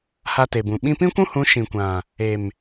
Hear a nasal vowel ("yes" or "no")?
yes